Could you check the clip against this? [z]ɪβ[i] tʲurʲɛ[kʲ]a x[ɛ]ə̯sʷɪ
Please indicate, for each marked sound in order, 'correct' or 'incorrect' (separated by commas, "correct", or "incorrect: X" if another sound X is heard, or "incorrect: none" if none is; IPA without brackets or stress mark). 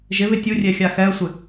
incorrect: ʒ, incorrect: ɪ, incorrect: xʲ, correct